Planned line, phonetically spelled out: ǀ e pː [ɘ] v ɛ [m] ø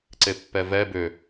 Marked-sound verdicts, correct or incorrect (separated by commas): incorrect, incorrect